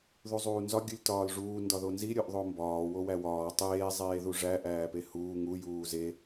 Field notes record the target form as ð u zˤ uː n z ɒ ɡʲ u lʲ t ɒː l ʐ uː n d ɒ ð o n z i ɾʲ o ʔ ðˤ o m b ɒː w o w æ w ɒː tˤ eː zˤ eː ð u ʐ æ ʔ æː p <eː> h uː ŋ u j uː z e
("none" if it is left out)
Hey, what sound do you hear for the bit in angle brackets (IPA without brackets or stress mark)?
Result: e